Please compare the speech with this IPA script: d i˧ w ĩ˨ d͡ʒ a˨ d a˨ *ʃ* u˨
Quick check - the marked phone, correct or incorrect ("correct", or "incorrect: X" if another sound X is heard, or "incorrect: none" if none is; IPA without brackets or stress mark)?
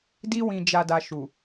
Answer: correct